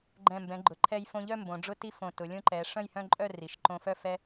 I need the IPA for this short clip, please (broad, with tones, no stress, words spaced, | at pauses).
ɡ͡ǃɛ̃˧˩mbɛ̃˩˧ɡ͡ǃʊ˩˧ ǃʰɛ˧jfõ˧ʎœ˥˧ mbõ˩˧ɖ͡ʐʊ˥ti˥fõ˧˩ tʊ˩˧lʲõ˥ǃɛ˩˧ ʂœ̃˥˧jhœ̃˥˧ǃʼœ˥˧ri˩˧ʃ ǃõ˧fœ˥˧ fɛ˧